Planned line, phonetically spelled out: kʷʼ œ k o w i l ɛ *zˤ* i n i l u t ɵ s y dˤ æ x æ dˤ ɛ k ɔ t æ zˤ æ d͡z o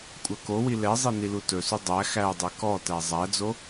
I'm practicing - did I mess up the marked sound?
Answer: no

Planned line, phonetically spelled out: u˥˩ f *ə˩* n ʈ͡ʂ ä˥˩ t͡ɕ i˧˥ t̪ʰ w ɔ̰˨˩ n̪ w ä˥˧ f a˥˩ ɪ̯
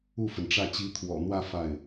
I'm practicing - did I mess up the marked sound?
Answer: no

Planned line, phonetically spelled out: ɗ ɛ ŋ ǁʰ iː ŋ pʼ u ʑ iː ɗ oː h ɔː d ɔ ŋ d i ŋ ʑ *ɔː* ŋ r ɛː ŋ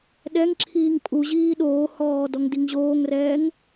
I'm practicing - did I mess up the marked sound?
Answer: yes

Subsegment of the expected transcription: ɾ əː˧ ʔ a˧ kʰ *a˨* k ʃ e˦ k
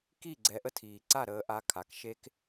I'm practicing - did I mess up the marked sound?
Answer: no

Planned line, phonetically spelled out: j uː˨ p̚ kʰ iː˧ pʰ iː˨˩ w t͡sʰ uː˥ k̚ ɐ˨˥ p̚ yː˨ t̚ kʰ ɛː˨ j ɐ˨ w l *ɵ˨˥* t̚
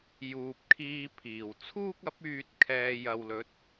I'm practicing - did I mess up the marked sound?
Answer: no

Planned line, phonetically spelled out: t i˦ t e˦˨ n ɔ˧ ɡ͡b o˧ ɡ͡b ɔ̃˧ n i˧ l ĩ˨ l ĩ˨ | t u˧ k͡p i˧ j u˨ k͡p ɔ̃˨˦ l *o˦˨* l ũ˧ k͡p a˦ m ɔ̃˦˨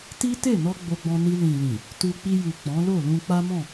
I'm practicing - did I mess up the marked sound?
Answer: no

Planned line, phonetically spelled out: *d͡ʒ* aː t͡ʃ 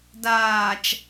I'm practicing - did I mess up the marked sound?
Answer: yes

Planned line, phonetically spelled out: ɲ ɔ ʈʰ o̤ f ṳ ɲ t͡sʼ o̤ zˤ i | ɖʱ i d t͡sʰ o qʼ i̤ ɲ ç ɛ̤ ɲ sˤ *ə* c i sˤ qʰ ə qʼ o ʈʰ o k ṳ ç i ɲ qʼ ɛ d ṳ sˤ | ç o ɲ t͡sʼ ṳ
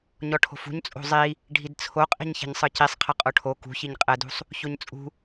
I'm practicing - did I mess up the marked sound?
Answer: yes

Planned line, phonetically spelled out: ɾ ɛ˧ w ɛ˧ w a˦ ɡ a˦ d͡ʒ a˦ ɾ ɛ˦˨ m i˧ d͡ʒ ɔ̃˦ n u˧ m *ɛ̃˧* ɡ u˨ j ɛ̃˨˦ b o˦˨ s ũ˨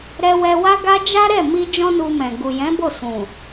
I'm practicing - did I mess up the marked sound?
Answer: yes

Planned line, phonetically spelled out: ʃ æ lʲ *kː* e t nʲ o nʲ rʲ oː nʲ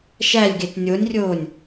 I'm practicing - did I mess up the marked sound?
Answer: yes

